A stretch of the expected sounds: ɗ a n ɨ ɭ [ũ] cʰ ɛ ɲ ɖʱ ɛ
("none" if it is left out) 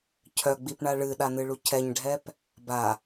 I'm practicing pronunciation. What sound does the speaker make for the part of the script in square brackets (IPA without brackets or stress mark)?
u